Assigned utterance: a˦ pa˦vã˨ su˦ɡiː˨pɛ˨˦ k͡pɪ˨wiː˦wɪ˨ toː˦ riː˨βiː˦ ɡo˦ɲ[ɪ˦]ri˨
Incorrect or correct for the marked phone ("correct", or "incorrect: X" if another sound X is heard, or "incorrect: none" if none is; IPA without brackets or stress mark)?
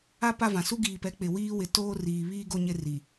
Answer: correct